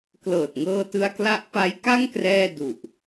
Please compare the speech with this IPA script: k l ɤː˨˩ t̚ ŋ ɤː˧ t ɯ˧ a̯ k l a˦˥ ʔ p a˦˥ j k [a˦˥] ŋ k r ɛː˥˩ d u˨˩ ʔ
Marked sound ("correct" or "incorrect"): incorrect